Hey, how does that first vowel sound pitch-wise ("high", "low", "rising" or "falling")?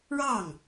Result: falling